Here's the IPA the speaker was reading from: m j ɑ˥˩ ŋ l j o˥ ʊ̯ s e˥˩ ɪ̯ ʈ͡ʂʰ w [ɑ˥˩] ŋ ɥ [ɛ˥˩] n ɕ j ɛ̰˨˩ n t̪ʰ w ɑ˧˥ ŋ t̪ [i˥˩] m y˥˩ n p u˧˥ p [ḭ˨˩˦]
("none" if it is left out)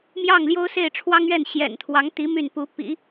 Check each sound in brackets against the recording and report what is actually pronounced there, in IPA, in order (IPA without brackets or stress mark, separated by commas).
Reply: ɑ˥, ɛ˥˩, i˧˥, ḭ˨˩˦